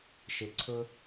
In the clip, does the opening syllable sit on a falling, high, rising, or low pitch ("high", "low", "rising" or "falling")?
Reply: low